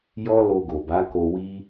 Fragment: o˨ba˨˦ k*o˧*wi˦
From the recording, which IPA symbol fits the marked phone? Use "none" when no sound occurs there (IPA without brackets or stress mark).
o˧